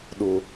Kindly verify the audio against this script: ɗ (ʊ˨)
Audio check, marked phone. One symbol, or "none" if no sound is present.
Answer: ʊ˦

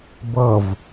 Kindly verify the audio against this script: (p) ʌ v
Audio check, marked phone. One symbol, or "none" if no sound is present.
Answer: b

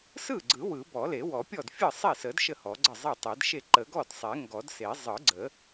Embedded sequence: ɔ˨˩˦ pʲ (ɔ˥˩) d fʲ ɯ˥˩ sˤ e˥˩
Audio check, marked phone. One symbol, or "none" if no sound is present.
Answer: ɔ˥˩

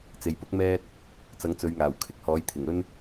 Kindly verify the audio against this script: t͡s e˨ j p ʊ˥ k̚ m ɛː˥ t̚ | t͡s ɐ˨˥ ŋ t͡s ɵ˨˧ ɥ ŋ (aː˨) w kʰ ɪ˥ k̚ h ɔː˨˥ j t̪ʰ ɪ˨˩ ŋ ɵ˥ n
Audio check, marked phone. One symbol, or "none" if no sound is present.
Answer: aː˨˩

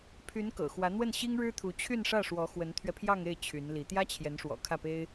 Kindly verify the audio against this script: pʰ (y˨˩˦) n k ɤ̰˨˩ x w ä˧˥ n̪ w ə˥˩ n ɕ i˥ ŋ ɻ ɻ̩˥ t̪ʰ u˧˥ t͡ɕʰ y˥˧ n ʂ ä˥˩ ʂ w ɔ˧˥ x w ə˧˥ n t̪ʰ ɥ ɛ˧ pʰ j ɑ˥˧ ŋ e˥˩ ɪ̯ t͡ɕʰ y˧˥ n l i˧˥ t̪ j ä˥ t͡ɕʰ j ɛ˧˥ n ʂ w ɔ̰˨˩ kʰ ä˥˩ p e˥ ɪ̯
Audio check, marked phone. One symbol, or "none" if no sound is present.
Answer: y˧˥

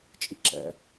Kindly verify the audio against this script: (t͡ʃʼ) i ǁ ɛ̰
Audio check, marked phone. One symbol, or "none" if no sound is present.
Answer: t͡ʃʼ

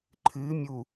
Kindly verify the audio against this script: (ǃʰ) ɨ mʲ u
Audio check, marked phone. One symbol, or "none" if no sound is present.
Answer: ǃʰ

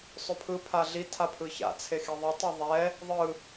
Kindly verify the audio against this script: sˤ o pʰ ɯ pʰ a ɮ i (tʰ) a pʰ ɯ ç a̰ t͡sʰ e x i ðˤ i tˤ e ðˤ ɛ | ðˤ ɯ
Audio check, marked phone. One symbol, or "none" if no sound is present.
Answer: tʰ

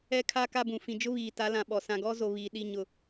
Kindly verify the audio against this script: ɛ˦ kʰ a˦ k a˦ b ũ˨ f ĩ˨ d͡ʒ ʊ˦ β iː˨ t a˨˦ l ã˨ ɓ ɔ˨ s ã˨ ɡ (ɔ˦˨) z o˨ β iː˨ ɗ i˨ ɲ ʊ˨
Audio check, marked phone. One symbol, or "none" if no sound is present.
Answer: ɔ˦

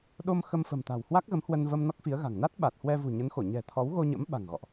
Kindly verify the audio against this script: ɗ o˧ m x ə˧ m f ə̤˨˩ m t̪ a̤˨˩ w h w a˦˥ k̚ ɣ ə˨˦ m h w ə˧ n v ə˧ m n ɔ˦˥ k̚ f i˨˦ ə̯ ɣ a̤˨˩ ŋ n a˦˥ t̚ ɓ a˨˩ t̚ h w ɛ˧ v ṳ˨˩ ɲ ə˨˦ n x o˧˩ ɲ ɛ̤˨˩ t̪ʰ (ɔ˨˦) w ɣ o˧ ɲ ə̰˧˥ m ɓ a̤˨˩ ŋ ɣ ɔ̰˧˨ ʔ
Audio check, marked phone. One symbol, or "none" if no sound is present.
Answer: ɔ˨˦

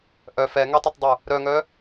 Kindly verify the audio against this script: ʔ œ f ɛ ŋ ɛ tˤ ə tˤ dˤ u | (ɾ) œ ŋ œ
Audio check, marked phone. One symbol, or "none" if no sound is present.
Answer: ɾ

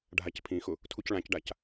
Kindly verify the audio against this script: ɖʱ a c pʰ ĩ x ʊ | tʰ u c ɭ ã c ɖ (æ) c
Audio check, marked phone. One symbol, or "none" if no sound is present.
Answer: a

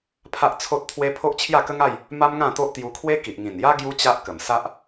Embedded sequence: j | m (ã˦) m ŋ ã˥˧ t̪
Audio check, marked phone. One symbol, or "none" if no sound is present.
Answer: a˦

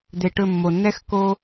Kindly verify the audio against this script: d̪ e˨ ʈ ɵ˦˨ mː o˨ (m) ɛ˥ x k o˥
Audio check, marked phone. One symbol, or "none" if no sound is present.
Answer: nː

